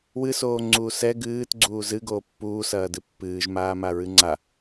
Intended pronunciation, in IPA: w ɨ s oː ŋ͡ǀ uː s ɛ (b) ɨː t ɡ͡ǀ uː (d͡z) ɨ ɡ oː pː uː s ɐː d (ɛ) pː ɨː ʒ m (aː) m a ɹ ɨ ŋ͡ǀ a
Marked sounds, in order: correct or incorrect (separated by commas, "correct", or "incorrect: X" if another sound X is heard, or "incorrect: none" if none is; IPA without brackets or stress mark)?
incorrect: ɡ, incorrect: z, incorrect: ɨ, correct